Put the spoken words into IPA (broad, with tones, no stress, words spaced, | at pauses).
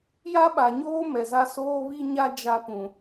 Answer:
ja˦ɓa˨ɲoː˦ mɛ˨za˦ soː˦βi˦ɲa˦ d͡ʒa˦pũ˨